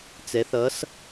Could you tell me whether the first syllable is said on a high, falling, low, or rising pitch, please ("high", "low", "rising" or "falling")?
rising